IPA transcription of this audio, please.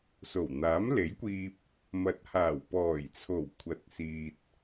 s o˨˩ w n̪ aː˨˥ m l e˨˥ j kʷ iː˧ p̚ | m ɐ˨˥ t̚ h aː˨˩ w p ɔː˨˩ j t͡sʰ o˨˩ w kʷʰ ɐ˨˥ t̚ s iː˨ t̚

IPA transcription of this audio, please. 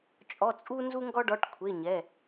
t͡ʃʼ ɔ˧˥˧ t͡sʼ u˥ n z u˥ ŋ ɡ ɔ˥ ɖ ɔ˧˥˧ ʈ kʷʰ e˧˥˧ ɲ ɛ˧˥˧

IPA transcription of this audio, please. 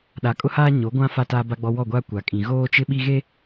ɗ a˨ kʼ ʊ˦ h aː˦ ɲ o˨˦ ɡʷ ã˦ f a˦˨ t aː˦ b a˦ ɡ͡b ɔ˦ w ɔ˦˨ ɡʷ aː˦ kʷ a˨ kʼ ĩ˨ ɣ oː˦ t͡ʃ ɪ˦ ɓ i˦ ɣ e˦

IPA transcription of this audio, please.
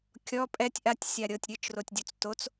kʲ ɔ pʼ ɛ tʲ ʔ a tʲ sʲ a ɾʲ ɤ tʲ ɾʲ ɯ t͡ʃ r o tʲ dʲ u t͡s t o t͡s

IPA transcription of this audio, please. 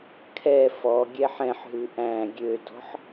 kʰ ɛ f ɔ ɡʲ ɛ ħ ɛ̃ ħ ɦ ʉ ʔ æ̃ ɡʲ ø d ɔ̤ ħ

